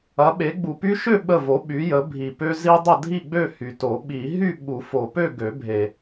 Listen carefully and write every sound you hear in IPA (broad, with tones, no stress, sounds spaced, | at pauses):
ɐ˨˥ ɓ e˨˥ ɡ͡b u˨ p y˦ ʃ ø˥˨ ɓ ə˥˨ v o˨˥ ɓ y˨˥ j ə˨˥ bʱ i˨ p ø˦ z i˦ dˤ ə˥˨ dʱ i˥˨ ɡ͡b ø˥˨ h y˨ t o˨˩˦ ɓ i˨˩˦ ɦ y˥˨ ɓ u˨˩˦ f o˨ p ø˥˨ ɡ ø˨˩˦ bʱ e˨